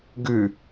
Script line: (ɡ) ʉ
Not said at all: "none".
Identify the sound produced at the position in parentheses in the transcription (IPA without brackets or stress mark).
ɡ